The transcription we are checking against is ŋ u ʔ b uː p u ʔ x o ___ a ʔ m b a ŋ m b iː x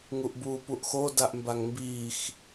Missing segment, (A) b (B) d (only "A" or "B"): B